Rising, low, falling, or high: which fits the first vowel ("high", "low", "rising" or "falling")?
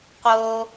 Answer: low